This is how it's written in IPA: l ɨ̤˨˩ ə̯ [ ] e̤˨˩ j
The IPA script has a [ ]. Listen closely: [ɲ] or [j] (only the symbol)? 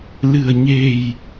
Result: ɲ